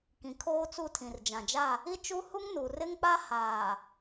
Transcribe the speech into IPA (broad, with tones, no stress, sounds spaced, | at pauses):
k ĩ˨ kʰ oː˦ t͡s u˦˨ tʰ ĩ˨ r d͡ʒ ã˨ d͡ʒ a˦˨ | i˦ t͡ʃ u˦ h u˦ ŋ n u˨ r ɪ˦ ŋ k͡p a˦ h aː˨